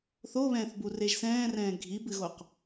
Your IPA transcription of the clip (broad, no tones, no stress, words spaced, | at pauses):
θoβɛ̃ːθbureʒ sɛ̃ːrɛ̃ː ɡʱibɨɣoq